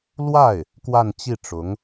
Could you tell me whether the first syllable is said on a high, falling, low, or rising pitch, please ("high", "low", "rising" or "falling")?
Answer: falling